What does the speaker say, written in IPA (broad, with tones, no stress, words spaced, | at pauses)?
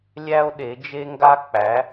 lʲæ˥o̯ɗe˨˥ d͡ʒe˥ŋɡa˥k͡pæ˨˥